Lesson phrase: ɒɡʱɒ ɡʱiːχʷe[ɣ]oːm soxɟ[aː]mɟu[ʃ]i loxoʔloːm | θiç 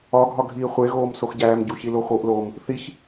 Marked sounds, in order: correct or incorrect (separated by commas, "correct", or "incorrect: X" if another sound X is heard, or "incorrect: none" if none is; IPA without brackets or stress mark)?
correct, incorrect: æː, incorrect: ç